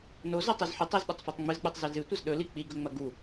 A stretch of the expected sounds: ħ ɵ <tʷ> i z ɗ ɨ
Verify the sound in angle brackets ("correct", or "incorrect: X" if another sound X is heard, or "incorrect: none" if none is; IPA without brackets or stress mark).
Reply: incorrect: tˤ